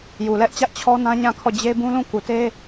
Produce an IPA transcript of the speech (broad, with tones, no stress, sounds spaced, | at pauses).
j u˨ l ɛ˦ ʔ t͡ɕ ä˦ ʔ t͡ɕʰ ɔ˦ n ã˦ ɲ ã˦˨ kʰ ɔ˦˨ d͡ʑ e˦ b ũ˦ l ũ˦˨ k u˨ t e˦